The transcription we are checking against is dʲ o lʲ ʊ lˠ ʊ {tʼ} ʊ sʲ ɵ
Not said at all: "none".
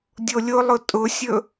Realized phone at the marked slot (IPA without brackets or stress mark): tʼ